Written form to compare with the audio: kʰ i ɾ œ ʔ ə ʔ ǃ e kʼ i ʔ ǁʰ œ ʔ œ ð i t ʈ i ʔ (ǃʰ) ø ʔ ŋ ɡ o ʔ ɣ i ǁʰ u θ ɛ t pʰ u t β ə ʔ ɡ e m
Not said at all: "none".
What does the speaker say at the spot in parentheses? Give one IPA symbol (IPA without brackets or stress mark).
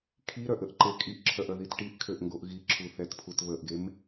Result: kʰ